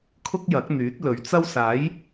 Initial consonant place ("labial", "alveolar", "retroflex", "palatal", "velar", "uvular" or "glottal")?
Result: velar